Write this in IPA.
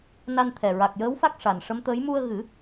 na˧nt̪ʰɛ˨˩ ɹa˨˩k̚jəː˧˥wfa˦˥k̚ ʂa˨˩n ʂə˧˥mt̪əː˧˥j mu˧ə̯ ɣɨ˨˩˦

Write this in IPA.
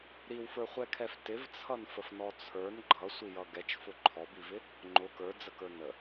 ɾiwfə˞χʷɛkʰɛf tɪvt͡sʰʌnfəfnɔ t͡sʰə˞n ɡ͡ǃʌsʷijʌ ɡɛt͡ʃfʊ ǃʰɔbivɪ | ŋ͡ǃʊ kə˞d͡zəkə˞ nə

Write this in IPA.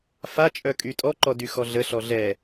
fat͡ʃʼœ kʼytʼɔǃɔ dyxɔɮəɬɔ ɮɛ

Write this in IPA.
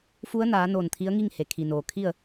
fu˧˥ə̯naː˩˧ noː˧˩nt̪ʰi˧˥ə̯ŋi˥˨ŋ he˩kʰi˩noː˩ kʰi˥˨ə̯

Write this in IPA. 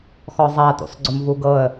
xɔzˤa tṵsˤɡ͡ǀʊmvuɡɤə̯

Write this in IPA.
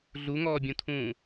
ɮuŋɔːbʲũtʰũː

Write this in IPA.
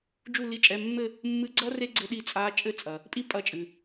d͡ʒu˥˧li˧˥˧t͡ʃʼɛ˧˥˧ mːɘ˥˧ | mːɨ˧˥ɡ͡ǀɐ˥ re˥ɡ͡ǀɘ˧˥ɗi˧˥ t͡sʼa˧˥ t͡ʃʼɘ˥˧t͡sʼɐ˨ | pʼi˥pʼɐ˧˥t͡ʃʼɨ˨

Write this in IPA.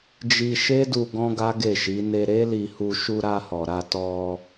d͡ʒi˧ʃe˦du˧ ɡɔ̃˦ɡa˦ɡe˦˨ʃi˨˦ ne˧ɾe˦li˧hu˧ ʃu˧ɾa˧hɔ˨ɾa˧ tɔ˧

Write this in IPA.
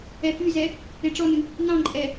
ɛfyzɛ | eʈ͡ʂɔnɨ | nɑ̃ǃʼɛ

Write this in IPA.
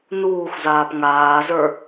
nuːxʷzaːp ŋaːzə˞

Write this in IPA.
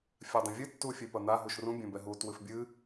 fʲadˤĩvʲɨ tːufʲepɐn̪a ɦuʃrũ bʲɛ̃bɛɦu twɨfbʲɨ

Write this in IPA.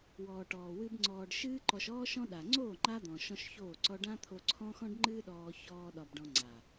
wɔː˨ʈɔː˨wɨ˧b ŋ͡ǀɔː˨ɖ ʃɨː˦ǃɔ˧ʃɔː˦ʃɔ̃˦ ɗa˨ŋ͡ǀoː˦˨ ŋ͡ǃa˦d̪ɔ̃˨ ʃɔ̃˦ʃçoː˦˨ ǀɔ˧ɖã˦t̪ʰo˧ǀʰɔ̃˦ xɔ̃˦ɖŋ͡ǃɨː˦ɗɔː˧ çɔː˦ɗɒ˧bɖɔ̃˧ŋ͡ǀa˨

